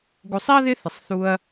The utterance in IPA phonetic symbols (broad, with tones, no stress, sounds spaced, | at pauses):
ɡ u˧ sˤ i˥ ɐ̯ ð ɪ˥ θ ɪ˧ sˤ θ u˥ ɐ̯